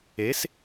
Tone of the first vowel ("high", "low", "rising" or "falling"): rising